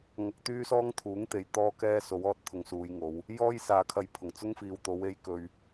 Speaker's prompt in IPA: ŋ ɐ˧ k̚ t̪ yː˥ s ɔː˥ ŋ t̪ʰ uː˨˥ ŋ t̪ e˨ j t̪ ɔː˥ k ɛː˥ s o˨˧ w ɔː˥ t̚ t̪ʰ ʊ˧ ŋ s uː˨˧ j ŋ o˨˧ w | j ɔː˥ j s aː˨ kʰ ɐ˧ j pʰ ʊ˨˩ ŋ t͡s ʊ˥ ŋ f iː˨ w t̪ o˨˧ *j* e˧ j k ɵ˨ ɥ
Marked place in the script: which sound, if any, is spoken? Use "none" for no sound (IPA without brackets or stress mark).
w